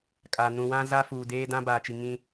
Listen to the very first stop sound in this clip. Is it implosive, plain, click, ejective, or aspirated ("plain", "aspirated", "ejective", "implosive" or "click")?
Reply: ejective